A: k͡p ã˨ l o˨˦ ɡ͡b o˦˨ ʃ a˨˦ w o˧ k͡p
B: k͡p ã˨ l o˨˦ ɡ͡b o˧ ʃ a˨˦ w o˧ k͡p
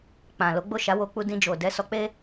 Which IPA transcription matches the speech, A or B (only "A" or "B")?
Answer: A